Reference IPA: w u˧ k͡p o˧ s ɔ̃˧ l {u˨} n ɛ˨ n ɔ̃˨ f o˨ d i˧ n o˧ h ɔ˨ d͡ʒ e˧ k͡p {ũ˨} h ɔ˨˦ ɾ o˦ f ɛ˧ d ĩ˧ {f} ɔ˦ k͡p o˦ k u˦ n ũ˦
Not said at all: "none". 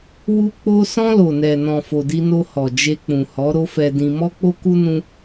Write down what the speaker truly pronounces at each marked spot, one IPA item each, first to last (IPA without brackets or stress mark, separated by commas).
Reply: o˨, ũ˨, m